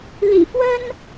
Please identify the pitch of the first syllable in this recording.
low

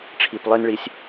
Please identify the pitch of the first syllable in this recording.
low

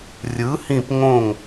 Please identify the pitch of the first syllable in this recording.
rising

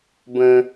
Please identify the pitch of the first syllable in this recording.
high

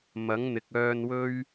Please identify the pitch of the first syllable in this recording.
rising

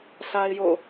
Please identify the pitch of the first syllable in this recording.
high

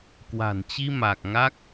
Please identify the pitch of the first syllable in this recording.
low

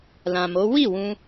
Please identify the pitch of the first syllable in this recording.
low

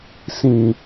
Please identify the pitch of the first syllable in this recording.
high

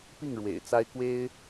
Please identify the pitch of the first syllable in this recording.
falling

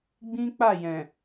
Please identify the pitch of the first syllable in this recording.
high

